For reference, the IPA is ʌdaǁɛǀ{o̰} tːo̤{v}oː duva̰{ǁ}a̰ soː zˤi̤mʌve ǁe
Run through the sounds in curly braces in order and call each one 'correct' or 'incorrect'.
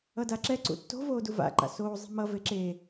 incorrect, correct, incorrect

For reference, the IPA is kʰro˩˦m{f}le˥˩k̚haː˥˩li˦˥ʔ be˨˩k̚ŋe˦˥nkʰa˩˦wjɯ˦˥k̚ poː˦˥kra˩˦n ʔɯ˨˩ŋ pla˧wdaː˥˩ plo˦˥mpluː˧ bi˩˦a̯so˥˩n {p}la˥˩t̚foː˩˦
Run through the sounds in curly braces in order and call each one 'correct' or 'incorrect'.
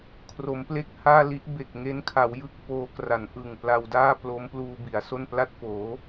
incorrect, correct

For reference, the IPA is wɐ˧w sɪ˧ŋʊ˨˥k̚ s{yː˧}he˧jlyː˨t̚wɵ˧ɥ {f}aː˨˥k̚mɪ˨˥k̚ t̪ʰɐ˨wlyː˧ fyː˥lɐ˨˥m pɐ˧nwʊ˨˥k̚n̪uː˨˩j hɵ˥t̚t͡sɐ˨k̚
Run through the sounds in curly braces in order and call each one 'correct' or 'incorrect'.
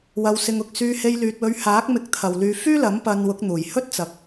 correct, incorrect

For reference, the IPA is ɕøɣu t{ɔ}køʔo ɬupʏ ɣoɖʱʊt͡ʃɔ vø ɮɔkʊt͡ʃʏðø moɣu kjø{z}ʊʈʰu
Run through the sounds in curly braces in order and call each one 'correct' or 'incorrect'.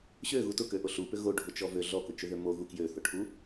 incorrect, incorrect

